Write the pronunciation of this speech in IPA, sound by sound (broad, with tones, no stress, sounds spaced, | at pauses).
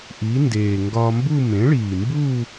ʔ i˩˥ n d eː˨˩ ŋ ɡ ɒː˧ m b u˥˧ m ẽ˩˥ ɭ iː˨˩ m b u˥˧